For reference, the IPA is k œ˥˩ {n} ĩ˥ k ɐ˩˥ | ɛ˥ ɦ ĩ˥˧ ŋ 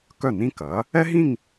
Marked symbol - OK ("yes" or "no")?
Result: yes